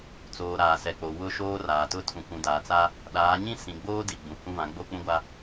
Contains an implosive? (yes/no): yes